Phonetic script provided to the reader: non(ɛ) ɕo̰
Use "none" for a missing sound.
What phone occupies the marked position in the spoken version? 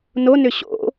ʏ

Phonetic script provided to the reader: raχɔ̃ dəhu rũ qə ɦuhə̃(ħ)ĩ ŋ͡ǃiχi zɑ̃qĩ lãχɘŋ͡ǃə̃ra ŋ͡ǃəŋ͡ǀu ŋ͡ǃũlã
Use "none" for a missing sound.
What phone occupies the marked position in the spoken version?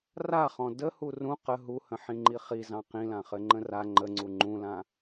ħ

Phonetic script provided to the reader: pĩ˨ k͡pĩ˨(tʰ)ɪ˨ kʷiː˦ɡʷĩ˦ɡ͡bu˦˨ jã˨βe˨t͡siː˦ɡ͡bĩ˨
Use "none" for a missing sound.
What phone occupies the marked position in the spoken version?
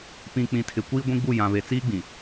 tʰ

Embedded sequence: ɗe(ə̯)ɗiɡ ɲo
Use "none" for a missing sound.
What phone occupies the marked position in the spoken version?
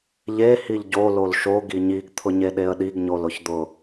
ə̯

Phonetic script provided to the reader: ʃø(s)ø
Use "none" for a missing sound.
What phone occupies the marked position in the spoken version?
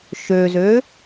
z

